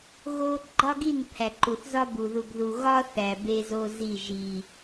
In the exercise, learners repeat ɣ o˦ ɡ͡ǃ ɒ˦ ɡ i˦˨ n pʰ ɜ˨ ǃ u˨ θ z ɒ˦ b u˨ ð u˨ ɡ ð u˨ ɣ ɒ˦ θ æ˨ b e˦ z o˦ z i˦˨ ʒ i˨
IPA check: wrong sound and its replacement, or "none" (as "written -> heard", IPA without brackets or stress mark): ɜ˨ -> æ˨